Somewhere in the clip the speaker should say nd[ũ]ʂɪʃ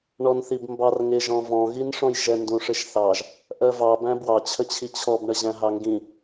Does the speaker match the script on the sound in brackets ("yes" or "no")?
yes